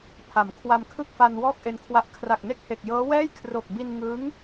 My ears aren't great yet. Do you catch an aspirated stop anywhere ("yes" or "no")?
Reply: yes